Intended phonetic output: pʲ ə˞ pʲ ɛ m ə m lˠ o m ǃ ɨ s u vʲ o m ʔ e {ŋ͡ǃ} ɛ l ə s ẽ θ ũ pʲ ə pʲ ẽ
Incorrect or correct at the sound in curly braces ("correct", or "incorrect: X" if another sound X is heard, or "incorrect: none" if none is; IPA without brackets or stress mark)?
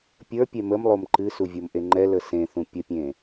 correct